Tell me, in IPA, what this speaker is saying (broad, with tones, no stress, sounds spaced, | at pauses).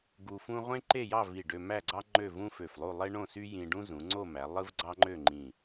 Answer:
ɡ u˧ f ũ˥ ʁʷ ẽ˥ ǃ e˥˧ j ɑ˥˧ v i˧˩ ɖ ø˧ m æ˥˧ ɡ͡ǀ ɑ˥ ŋ͡ǃ ø˥˧ v ũ˥ f ø˧˩ f lˠ u˥˧ lˠ e˥ ɳ õ˥˧ s y˥ j ĩ˧ ɖ ũ˥ z ũ˩˧ ŋ͡ǀ o˥˧ m æ˩˧ lˠ ɯ˥ v ɡ͡ǀ ɑ˥ ŋ͡ǃ ø˥˧ ŋ͡ǃ ĩ˧˩